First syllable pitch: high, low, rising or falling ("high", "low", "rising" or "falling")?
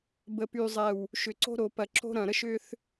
low